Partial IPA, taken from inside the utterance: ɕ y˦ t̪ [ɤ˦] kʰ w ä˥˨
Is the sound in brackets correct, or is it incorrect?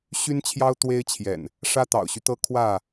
correct